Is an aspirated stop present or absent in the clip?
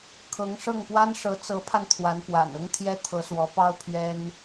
present